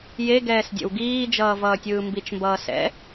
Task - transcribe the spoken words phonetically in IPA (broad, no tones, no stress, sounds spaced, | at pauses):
j e ɡ ɛː s dʲ ɛ̰ w ɡ iː d͡ʒ ʌː v ʌː tʲ ɯː m b i t͡ʃ m b ʌː s ɛ̰